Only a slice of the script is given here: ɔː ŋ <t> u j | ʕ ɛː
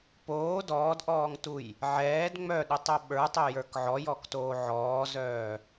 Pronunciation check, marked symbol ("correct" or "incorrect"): correct